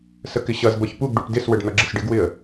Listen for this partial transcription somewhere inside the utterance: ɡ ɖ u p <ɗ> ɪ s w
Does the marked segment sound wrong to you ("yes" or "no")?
yes